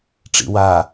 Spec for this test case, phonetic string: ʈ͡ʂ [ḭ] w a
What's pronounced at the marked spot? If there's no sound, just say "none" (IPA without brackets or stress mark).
ḭ